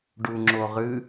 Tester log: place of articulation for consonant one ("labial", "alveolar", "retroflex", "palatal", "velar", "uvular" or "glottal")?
retroflex